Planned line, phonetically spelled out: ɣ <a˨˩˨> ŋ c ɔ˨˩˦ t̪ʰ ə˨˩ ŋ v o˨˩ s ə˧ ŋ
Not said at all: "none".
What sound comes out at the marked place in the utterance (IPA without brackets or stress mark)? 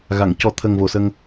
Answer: a˨˩˨